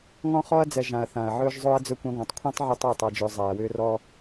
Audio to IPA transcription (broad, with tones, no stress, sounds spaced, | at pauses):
ŋ ɔ̃˧ χ ɔ˧ ɐ̯ d͡z ɛ˨ ʒ ã˨ ɐ̯ θ ã˨ ɐ̯ ʕ ɵː˦ ʒ zˤ ɵː˦ ɐ̯ d͡z ɵ˦ kʷ ɛ̃˦ ɡʷ æ̃˧ tˤ kʷʰ ɛ̃˦ tˤ ʕ ɵ˧ tˤ ʏː˦˨ tˤ a˧ d͡ʒ ʏː˧ zˤ æ˨ ɐ̯ w ʏː˦ r ɔ˦